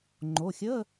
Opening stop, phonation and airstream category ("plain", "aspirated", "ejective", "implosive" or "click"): click